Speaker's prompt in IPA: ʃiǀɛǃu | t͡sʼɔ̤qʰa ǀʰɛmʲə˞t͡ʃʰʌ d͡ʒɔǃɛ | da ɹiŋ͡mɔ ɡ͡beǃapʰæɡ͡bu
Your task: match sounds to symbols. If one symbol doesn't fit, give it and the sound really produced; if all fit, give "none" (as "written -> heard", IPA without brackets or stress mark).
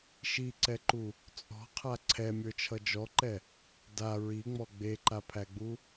none